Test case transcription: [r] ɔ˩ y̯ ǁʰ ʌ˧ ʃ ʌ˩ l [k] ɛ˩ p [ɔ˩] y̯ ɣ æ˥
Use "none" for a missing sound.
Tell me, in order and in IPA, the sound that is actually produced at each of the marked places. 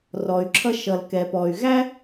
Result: r, k, ɔ˩

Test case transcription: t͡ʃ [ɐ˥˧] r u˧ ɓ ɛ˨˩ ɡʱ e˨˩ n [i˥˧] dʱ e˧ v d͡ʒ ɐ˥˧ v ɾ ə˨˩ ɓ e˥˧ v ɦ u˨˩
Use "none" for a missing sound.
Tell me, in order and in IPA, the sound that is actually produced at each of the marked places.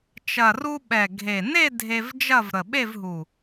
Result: ɐ˨˩, e˥˧

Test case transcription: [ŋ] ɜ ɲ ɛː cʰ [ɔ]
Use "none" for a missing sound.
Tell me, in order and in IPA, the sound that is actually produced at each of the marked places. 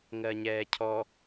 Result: ŋ, ɔ

